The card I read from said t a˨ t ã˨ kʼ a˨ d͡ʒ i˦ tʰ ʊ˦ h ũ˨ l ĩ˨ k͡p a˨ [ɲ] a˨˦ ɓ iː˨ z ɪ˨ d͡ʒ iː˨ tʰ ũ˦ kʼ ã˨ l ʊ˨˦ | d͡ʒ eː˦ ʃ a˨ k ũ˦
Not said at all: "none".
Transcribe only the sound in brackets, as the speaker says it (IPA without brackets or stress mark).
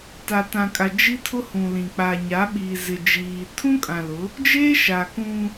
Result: ɲ